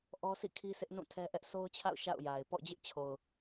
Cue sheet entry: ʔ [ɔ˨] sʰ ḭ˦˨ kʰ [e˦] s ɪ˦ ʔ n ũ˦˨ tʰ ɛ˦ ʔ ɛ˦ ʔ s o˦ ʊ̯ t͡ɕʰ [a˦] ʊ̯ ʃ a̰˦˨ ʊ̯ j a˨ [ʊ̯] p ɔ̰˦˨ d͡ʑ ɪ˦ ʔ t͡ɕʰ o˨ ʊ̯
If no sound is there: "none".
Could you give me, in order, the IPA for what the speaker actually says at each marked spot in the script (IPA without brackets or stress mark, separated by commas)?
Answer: ɔ˦, i˦, a̰˦˨, ɪ̯